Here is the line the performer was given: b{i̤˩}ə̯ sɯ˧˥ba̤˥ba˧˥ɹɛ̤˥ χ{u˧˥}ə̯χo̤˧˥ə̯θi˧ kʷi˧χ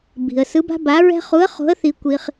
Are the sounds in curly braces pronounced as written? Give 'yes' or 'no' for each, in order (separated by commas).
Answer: yes, yes